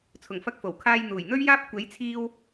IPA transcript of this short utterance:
t͡sʰʊ˨˩ŋfɐ˧k̚ fo˨˩wkʰaː˧jn̪uː˨˩j n̪ɵ˥ɥjaː˥p̚ kʷe˨˥jt͡sʰiː˧w

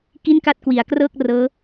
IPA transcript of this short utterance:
ki˥˩nka˥˩t̚kwi˩˦a̯krɤː˥˩k̚ rɤː˦˥

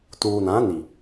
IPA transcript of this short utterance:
tuː˨nã˨˦ni˨

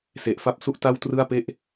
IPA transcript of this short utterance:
se˨˩ʔfa˦˥p̚ su˥˩ʔ ta˥˩wtrɯ˥˩a̯pe˥˩ʔ

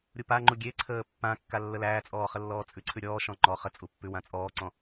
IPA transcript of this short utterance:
ɾʲupaŋ͡ǃu ɡʲeǀʰəː pːã kːalːəlæːt͡sʼɔː χəlːɔːt͡sʼʉǀʰʉ ɾʲɔːʃɔ̃ ŋ͡ǃɔ χə t͡sʼupːʉwã t͡sʼɔːǀɔ̃

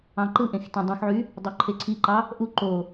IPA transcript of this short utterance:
ɑ̃ǃɯʔẽx tẽdˤũxʕy | dˤøǃʰeǀʰiǃɑ | ʔu ǃo

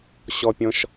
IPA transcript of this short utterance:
ɕɔpʲɔ̃ʃ

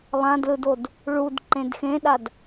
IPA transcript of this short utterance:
lˠãdlɯdod | ɭud ǃẽdxẽɗad

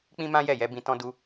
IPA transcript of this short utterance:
k͡pĩ˦mã˦jɛ˦˨jɛ˧ bĩ˧tɔ̃˦ du˦

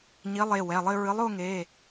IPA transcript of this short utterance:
ɲi˨˥lˠe˩˧˩ wɛ˩˧˩lˠɘ˥˧ ɹɨ˨˥lˠo˥˧ŋe˩˧˩

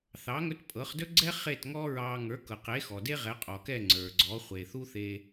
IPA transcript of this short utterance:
θɑ˩˥ŋɵ˧t pʼɤ˩˥χdɵ˥ɡ͡ǀɛ˥ χe˥˩tŋɔ˥ɹɑ˧ ŋə˞˩˥kɤ˩qe˩˥ xɔ˩de˥ʁɛ˩˥ qʼɔ˩kɛ˥˩ ŋ͡ǀə˞˩ɡ͡ǀɔ˩˥ χʷe˩θu˥θe˧

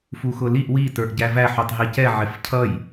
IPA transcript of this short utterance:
fuxʊliʔ wi tə˞ʔɟævæ ħutˤɦicɛ ʕɪfcʰʌj

